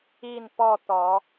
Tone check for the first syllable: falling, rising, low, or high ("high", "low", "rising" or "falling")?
falling